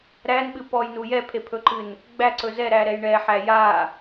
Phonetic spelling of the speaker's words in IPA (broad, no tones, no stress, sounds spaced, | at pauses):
ɾ æ n ɓ ɨ p ɔ j n u j ɛ pʰ e pʰ ɵ ǃ ɨ n | ɡ͡b æ ǀ ɵ z ɛ ɾ æ ɾ ɛ j ɳ ɛ ħ æ j a